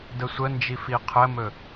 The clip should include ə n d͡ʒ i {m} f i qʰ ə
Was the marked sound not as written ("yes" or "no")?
yes